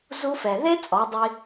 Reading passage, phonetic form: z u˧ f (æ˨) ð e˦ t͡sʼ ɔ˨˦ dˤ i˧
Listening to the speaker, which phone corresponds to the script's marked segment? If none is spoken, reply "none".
ɛ˨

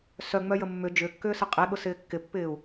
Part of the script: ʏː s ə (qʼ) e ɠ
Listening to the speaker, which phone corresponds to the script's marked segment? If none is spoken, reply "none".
qʼ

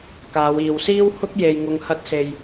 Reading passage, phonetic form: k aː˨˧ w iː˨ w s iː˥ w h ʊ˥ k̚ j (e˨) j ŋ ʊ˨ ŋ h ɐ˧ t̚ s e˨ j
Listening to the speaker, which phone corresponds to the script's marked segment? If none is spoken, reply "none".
e˨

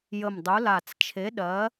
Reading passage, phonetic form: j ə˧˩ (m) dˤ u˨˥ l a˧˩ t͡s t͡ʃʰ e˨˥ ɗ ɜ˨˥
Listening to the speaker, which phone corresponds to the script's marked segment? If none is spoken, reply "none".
m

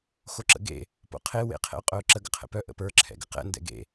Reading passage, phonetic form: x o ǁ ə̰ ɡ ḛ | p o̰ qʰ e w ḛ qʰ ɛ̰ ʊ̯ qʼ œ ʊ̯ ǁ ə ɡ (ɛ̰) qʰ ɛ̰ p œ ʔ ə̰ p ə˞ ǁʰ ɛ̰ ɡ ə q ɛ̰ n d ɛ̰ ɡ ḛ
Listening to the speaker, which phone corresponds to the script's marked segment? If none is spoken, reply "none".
ə̰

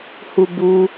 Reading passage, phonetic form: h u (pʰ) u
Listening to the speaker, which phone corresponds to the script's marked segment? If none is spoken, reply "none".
b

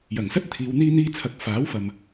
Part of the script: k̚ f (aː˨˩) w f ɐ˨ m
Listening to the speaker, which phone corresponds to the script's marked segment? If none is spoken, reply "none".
aː˨˥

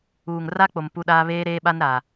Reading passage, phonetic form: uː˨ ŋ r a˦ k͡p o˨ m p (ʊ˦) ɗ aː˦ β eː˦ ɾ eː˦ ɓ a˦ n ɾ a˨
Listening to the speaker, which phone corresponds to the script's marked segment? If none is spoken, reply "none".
u˦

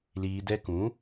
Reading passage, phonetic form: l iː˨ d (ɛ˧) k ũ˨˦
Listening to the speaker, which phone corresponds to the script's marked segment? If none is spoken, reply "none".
ɛ˧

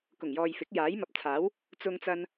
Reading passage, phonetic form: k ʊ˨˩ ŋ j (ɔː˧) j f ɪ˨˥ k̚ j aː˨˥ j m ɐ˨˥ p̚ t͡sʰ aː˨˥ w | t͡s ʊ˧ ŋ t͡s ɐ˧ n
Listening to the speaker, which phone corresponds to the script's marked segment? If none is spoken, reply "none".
ɔː˨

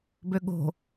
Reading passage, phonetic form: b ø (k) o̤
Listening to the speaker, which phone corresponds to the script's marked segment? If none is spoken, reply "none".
ɠ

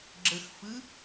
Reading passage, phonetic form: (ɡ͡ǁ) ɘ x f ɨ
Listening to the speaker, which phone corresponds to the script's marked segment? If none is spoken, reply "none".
ɡ͡ǁ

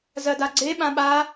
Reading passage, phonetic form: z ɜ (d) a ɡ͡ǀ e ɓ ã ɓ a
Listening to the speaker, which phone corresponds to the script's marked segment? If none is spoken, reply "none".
d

